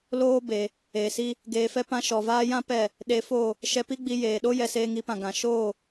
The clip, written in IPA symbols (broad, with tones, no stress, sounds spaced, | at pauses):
l oː˦ b e˨ | eː˨ s i˦ | ɡ eː˧ f ɛ˦ p ã˦ ʃ ɔ˨ v aː˦ j ã˦ p ɛ˦˨ | ɗ e˧ f o˦˨ | ʃ ɛ˧ p i˦ ɡ͡b i˧ j eː˨ ɗ o˦ j ɛ˧ s eː˧ ŋ i˨˦ p ã˨ ɡ ã˨ ʃ oː˦˨